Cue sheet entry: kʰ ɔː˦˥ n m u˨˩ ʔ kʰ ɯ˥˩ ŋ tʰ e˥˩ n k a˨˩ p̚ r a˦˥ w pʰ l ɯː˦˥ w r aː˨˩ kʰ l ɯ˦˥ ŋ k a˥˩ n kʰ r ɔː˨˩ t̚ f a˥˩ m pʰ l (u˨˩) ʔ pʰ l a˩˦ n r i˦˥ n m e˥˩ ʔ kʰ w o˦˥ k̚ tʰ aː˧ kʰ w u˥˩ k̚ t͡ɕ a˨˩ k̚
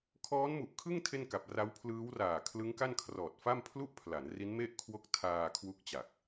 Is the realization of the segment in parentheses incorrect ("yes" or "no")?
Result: yes